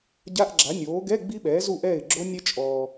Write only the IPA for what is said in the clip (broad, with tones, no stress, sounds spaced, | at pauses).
ɟ a˧˥˧ ʔ ɡ͡ǁ a˩˥ nʲ oː˩˥ ɡ ɛ˧˥˧ ɡ͡b i˦˥ ɓ ɛː˩˥ z u˥˩ ʔ ɛ˥˩ ɪ̯ ɡ͡ǁ o˦˥ nʲ ɛ˦˥ t͡ʃʼ ɔː˨